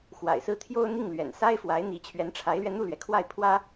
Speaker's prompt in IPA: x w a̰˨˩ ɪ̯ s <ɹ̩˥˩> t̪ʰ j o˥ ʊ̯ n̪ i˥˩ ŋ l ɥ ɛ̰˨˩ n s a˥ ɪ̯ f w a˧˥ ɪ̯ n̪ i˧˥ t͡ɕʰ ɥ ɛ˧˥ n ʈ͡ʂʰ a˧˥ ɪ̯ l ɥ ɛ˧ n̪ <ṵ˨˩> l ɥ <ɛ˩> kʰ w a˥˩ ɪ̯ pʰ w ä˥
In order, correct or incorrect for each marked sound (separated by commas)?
correct, incorrect, correct